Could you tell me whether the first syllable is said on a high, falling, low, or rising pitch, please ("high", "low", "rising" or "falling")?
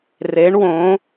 rising